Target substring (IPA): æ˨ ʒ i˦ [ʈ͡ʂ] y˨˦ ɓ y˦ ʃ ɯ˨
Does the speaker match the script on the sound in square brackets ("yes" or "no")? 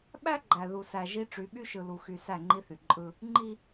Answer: yes